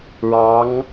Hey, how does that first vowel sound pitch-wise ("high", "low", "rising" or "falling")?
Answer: rising